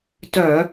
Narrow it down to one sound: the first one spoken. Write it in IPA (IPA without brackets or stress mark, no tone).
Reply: t